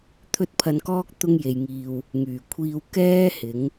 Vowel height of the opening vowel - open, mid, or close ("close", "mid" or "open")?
mid